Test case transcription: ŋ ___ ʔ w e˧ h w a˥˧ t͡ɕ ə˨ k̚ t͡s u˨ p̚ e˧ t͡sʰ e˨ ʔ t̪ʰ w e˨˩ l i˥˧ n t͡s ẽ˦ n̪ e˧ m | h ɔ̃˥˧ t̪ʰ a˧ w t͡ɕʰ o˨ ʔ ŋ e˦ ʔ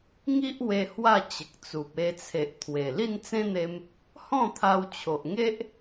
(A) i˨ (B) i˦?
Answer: B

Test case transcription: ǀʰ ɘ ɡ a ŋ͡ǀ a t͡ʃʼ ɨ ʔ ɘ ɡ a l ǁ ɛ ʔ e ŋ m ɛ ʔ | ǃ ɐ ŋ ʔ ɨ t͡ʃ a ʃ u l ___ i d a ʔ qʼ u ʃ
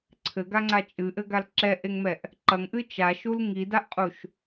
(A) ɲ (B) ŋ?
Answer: B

